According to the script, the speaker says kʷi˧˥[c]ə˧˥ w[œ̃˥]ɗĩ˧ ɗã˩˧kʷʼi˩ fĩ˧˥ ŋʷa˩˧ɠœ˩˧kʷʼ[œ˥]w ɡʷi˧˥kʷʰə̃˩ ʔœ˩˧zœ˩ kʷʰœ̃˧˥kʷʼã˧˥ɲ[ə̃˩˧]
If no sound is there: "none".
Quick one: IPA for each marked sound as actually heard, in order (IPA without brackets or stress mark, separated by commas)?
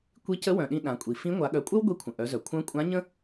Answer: c, œ̃˩, œ˥, ə̃˥